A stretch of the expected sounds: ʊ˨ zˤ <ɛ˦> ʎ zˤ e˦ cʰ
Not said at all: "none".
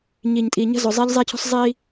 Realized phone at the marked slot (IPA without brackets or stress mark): e˦